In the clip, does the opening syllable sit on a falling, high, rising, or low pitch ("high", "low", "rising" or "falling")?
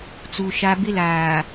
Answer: low